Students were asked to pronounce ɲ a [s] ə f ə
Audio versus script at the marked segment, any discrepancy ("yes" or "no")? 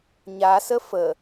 no